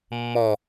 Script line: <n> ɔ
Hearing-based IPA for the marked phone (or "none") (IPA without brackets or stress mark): mː